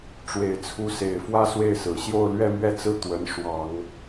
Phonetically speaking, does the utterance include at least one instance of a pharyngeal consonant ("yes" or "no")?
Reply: no